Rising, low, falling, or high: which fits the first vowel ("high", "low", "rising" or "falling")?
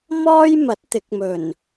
high